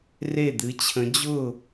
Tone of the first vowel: falling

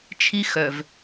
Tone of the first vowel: high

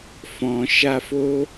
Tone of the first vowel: low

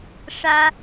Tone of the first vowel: high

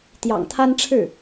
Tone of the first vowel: low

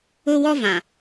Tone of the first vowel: high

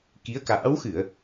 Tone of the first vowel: rising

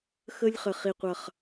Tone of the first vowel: high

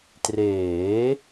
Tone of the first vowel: rising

